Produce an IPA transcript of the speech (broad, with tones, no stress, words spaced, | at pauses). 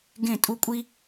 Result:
ɡẽ˥˩tʼu˥kʷʼi˥